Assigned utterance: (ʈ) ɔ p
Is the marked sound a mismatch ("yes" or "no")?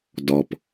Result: yes